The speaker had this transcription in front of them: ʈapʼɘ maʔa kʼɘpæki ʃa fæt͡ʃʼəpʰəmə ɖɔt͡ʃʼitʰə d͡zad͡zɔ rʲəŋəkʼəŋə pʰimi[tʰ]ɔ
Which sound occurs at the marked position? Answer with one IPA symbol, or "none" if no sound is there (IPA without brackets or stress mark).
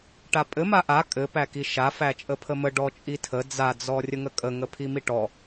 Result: ʈ